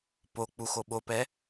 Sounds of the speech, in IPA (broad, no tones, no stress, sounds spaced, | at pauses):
p o k͡p u x o ɓ o p ɛ